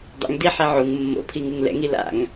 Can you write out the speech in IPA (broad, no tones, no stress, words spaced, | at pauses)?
dˤɛ̰ŋ diħe ʕuŋ mːo̰pʰiŋɯŋ lɛ̰ŋi la̰ŋ